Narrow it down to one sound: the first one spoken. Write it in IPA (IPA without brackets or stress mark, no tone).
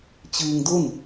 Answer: t͡ɕ